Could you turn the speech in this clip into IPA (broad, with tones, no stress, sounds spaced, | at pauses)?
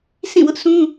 s ĩ˦˨ w ʊ˦ ʔ s ũ˦